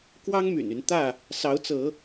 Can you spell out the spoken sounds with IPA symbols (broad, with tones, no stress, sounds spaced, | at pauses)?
k w ɑ˦ ŋ m y̰˨˩ n y˨˦ n t̪ ä˥˨ | s ɑ˨˦ ʊ̯ t͡s ɤ˨˦